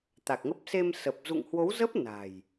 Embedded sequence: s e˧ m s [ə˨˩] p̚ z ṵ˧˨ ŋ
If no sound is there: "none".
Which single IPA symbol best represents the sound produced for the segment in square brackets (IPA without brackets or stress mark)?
ə˨˩